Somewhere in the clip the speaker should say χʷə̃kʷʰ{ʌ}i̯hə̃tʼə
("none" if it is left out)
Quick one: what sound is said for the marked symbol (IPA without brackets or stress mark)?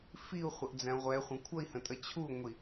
ʌ